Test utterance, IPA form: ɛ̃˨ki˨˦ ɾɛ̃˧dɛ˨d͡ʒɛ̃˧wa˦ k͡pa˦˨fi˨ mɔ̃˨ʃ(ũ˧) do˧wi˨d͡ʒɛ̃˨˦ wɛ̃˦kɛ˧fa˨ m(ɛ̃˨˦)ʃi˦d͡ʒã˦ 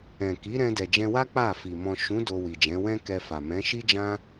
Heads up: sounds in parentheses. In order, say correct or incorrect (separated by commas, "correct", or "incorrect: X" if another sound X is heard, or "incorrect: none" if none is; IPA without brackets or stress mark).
incorrect: ũ˨˦, correct